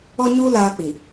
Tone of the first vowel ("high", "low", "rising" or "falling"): high